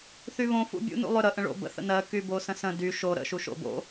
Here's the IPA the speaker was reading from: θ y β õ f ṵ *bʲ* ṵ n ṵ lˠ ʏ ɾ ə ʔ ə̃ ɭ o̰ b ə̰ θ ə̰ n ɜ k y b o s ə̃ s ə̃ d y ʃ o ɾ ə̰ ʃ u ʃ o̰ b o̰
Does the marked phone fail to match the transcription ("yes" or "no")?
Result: no